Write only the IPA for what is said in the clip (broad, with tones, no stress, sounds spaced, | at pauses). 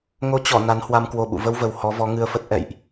ŋ o˨˦ t͡ɕ ɔ˧˩ n a˨˦ n h w a˧ m k w o˧ ɓ ṵ˧˨ v ə˧ w v ə˨˩ w h ɔ˨˦ v ɔ˨˦ ŋ ɨ˧ ə̯ f ə˦˥ t̚ ʔ ɛ̰˧˨ j ʔ